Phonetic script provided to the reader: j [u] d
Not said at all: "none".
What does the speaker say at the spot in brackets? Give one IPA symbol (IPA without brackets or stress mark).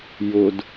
ʊ